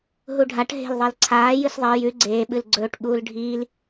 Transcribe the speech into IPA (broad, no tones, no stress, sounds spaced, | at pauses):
ɦ u ɖʱ a ʈ ɦ e̤ l ðˤ e l ǀʰ aː j ɨ s ðˤ e j ʉ ɡ͡ǀ eː ɓ ɨ l ɡ͡ǀ ɵː ʈ ɓ uː l ɖʱ iː l